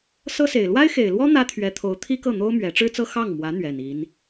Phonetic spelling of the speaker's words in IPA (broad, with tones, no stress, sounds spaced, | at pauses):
s ɤ˥ s e˨˩ ɪ̯ l w a˥ ɪ̯ x e˨˩ ɪ̯ l w ɔ˥ n̪ ä˥ t̪ʰ ɥ ɛ˧˥ t̪ʰ o˧˥ ʊ̯ t̪ʰ i˥ k ɤ˥˩ n̪ o˥ ʊ̯ m ɥ ɛ˧˥ ʈ͡ʂ ɻ̩˥ t͡s ɤ˥ x ɑ˥˩ ŋ m w ä˧˥ n̪ ɥ ɛ˨˩ n i˧˥ n